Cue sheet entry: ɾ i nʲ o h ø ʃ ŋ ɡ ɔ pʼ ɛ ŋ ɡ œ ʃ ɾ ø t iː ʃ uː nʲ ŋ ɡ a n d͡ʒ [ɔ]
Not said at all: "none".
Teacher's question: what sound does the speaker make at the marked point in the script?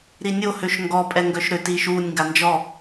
ɔ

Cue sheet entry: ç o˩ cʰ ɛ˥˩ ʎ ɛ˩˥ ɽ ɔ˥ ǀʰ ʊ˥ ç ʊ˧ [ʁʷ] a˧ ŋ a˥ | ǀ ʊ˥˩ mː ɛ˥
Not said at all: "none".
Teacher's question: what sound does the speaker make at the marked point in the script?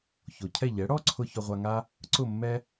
ʁʷ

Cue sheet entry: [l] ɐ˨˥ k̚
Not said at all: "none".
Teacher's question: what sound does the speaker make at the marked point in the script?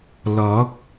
l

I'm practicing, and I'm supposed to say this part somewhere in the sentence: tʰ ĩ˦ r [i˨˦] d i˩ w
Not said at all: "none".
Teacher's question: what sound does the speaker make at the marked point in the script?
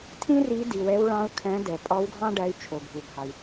i˨˦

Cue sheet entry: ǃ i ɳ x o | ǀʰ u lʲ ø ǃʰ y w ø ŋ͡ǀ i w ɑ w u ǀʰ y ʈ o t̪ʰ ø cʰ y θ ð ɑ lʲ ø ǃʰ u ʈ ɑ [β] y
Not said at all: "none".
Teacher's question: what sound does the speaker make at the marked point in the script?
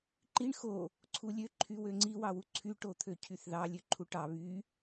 β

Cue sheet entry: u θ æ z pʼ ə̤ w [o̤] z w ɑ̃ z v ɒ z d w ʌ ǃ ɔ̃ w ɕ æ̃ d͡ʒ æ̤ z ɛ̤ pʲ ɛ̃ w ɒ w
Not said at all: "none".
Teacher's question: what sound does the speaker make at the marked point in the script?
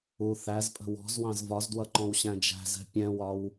ɔ̤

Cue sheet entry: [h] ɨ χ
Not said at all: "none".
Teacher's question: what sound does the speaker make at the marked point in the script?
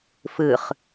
f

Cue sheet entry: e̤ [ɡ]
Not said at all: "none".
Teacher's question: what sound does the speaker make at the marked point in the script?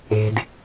d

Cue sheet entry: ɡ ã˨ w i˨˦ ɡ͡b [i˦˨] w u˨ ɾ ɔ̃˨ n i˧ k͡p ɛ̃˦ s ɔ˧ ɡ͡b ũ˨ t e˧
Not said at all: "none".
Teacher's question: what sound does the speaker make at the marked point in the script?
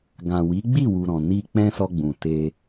i˦˨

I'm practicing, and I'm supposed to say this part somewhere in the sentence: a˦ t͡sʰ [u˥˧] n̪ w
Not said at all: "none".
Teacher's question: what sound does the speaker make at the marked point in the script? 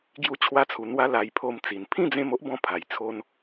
u˧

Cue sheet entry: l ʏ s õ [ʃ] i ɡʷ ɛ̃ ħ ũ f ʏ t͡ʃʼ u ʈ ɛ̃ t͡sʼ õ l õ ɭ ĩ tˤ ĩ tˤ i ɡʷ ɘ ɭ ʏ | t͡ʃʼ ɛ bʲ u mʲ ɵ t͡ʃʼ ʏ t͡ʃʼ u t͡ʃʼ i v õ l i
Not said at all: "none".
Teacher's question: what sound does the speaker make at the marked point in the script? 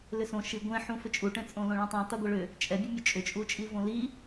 ʃ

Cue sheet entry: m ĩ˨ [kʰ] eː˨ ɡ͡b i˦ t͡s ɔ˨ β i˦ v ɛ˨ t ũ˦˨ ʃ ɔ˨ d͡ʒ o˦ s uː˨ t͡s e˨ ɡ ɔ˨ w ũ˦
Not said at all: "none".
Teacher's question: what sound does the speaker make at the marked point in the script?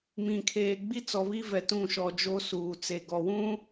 kʰ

